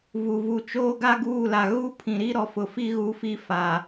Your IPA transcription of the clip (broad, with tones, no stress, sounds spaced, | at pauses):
v u˨ v u˨ t͡ʃ oː˦ ɡ a˦ ɡ uː˦˨ l a˨ ɣ u˦ pʰ ĩ˨ ɾ i˦ ɾ ɔ˨ f ʊ˨ f i˦ ɣ u˨˦ f i˨ f a˨